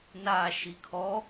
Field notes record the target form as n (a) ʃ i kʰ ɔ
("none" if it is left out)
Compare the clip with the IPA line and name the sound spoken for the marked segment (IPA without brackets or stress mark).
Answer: a